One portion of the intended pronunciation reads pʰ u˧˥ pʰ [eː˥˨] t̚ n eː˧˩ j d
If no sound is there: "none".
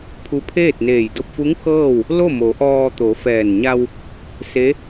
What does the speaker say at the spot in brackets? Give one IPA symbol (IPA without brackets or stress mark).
eː˥˨